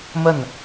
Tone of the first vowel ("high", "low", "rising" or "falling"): falling